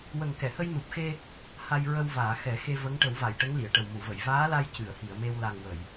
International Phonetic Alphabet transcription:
wə˨˩ŋkɛ˨˩˨hə˧j nu˨˩p̚xe˧ | ha˧jɹə˧wvaː˨˩˨ xɛ˨˩˦ xe˧və˧˥ŋ ʈə˨˩˦wva˨˩˨jʈə˧˥ŋ li˨˩˨ə̯ʈə˨˩w mu˨˩˨və˨˩˨j vaː˧˥la˧j cɨ˨˩˨ə̯hi˨˩˨ə̯me˧w la˨˩ŋ wə˨˩˨j

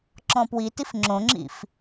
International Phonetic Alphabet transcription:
ǁɔ̃pwitif ŋ͡ǁõŋ͡ǁḭf

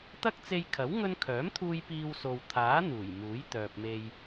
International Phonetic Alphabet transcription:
t̪ɐ˥k̚t͡se˧jkʰɐ˨˥w ŋɵ˥n kʰœː˨˥mt̪ʰuː˧j piː˧wso˨wt̪ʰaː˨˥ n̪uː˨˩j muː˨˥jt̪œː˨p̚me˧j

